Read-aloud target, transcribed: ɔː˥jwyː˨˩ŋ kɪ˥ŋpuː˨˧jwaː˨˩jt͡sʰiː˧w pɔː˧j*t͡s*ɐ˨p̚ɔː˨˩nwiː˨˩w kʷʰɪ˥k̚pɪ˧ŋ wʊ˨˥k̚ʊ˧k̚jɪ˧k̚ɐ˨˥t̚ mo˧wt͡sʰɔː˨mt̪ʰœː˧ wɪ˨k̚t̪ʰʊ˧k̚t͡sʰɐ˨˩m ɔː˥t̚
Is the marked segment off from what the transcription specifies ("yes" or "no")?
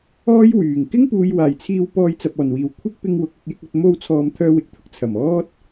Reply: no